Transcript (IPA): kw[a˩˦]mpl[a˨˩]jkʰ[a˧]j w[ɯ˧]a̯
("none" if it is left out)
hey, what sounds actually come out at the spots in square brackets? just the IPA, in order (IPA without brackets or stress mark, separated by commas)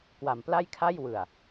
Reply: a˩˦, a˥˩, a˥˩, ɯ˨˩